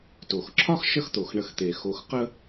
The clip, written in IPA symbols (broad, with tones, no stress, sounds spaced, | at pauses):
t o˩ x ǁʰ ɒ˥ x ʃ ə˦ x t̪ o˩ x ɳ ə˨ x t̪ e˩ x o˨ x q ə˦